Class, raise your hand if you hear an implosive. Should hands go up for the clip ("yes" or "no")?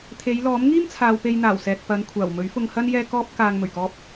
no